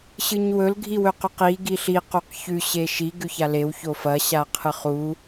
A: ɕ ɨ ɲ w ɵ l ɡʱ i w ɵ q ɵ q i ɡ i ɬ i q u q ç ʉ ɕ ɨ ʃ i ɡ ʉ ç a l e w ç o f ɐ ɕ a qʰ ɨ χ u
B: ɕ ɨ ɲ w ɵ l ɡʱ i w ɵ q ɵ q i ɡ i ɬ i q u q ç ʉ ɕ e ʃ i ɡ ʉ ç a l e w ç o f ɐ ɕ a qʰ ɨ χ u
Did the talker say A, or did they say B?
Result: B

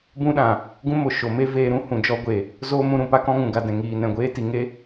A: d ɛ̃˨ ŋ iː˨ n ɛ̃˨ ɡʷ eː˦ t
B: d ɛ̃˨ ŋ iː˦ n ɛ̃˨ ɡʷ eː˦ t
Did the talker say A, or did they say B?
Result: A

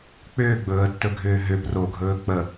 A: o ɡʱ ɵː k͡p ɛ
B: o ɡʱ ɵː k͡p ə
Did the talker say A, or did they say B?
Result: B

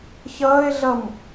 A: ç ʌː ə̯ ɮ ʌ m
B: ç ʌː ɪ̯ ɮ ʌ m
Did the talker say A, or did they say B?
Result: B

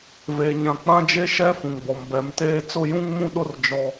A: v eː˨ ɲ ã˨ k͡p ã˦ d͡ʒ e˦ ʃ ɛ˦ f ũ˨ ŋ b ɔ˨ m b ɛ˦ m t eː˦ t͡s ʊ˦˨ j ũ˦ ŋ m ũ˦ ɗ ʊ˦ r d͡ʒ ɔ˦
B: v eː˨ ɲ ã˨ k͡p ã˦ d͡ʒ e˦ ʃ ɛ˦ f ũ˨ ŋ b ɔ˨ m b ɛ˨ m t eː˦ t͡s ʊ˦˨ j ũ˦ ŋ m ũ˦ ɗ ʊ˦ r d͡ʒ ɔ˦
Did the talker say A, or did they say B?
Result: B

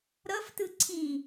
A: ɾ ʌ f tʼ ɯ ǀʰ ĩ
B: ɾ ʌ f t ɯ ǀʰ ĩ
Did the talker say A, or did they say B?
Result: B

